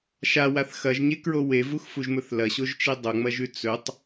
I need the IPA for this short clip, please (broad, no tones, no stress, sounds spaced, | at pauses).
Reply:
ʃ a w a θ x ɐ ʒ ɲ e k ɹ o w e v u x f u ʒ m ɵ θ l ɐ ɕ o ʒ t͡ʃ i dˤ o ŋ͡m ɐ ʒ ʉ t͡s ɵ tˤ